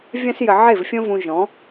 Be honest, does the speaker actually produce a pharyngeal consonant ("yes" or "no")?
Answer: yes